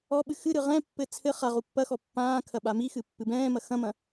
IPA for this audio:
ɔɓɨ xɨɾɨ ʁɛ̃pːɘ t͡sʰɘ χaʁu pːɐxɔ pːãːkʰɐ ɓamixɨ pːɨbɛ̃ːmɐ xɐ̃mɐ̃

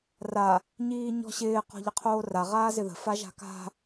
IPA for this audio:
ra | ɲiːɲɔ̤ɕɪː qɔ̤ʎəqʰoːra ʁaːzɪðə̤ faʒa̤ka̤

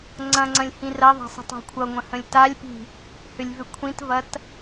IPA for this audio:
ŋ͡ǀɐ̃ŋ͡ǀɐ̃lʲ hĩrɐðˤa̤ sˤə̤tˤa̤kʷʰʌŋʷɐ̃ hə̃lʲtalʲpi̤ | hʏlʲvʏkʷʰĩtvɐt

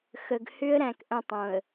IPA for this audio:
xə˨ɡhʏ˦ə̯ ɾæ̃˨kʔə̃˦˨tˤõ˨ə̯

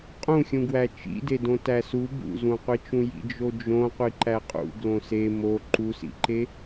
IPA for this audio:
qʼũxʲũɡwæ t͡ʃḭdedõ tæsu bṵzũqʷit͡ʃũ jḭd͡ʒod͡ʒõqʷi ǃæqʼṵ ɡlõse mo ǃusḭǃe

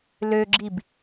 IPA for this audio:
løɡ͡ǁib

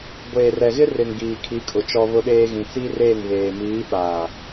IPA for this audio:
ɡʷeː˨rɛ˨ɣɪ˦ rɪ˨ŋ ɡiː˨kʰi˨˦kʼʊ˨ t͡ʃɔ˦βʊ˦ɗeː˦ ɣĩ˨t͡si˦reː˦˨ŋβeː˨ miː˨˦ɓaː˨

